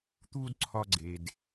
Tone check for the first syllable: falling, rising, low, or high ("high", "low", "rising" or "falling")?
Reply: high